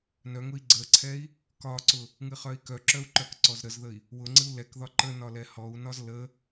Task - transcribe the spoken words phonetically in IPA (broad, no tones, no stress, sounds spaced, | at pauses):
n œ ŋ ʊ i̯ ɡ͡ǀ ə ǀʰ ɛ i̯ | k ɒ ǀ ʊ | ŋ ɨ χ œ i̯ k œ ǁ œ u̯ ǃ œ k ǀ ɔ z ɾ ə z ð ə i̯ | w ʊ ŋ͡ǀ ɨ u̯ l ɛ k ð ɒ ǃ ə n ɒ l ɛ h ɔ u̯ n ɒ z l ə